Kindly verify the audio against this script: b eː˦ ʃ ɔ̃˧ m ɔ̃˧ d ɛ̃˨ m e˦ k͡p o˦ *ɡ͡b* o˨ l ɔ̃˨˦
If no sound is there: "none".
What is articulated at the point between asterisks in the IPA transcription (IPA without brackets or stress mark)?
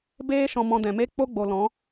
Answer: ɡ͡b